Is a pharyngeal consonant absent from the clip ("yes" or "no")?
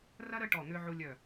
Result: no